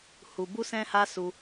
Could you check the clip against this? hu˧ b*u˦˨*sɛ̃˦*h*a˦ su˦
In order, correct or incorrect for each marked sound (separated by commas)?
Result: incorrect, correct